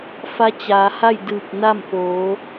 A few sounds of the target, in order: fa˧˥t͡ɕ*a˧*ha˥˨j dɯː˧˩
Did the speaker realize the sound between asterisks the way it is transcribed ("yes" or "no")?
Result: no